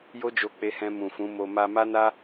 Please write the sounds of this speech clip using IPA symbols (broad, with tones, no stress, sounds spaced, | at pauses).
j o˦ d͡ʒ o˧ k͡p e˧ h ɛ̃˧ m ũ˨ f ũ˨˦ m o˧ m a˧ m a˦ n a˦